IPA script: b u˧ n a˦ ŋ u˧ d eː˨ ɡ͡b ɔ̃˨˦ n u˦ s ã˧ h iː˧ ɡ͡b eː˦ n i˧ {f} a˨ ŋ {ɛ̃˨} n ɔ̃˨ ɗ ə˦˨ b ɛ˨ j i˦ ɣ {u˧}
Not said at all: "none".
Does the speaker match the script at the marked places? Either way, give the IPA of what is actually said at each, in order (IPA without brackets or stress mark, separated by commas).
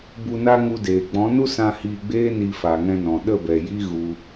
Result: f, ɛ̃˧, u˧